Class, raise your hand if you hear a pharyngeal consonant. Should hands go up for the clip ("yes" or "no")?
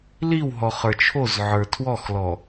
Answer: yes